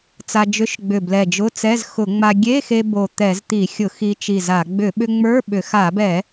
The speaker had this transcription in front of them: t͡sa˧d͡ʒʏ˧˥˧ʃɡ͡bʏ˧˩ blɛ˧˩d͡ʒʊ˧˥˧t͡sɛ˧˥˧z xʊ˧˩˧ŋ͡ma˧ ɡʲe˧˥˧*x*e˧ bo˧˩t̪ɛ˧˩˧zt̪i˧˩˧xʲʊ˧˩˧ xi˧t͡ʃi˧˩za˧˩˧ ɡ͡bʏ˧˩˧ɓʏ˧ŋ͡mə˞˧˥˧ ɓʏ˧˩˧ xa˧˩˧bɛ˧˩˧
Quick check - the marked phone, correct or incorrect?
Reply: correct